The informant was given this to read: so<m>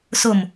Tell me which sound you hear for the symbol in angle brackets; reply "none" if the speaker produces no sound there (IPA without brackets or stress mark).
m